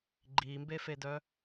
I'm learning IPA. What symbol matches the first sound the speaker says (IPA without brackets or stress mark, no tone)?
ɡ͡ǃ